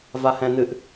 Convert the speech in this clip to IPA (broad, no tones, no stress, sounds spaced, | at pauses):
v a h ɛ̃ n̪ ɨ ʔ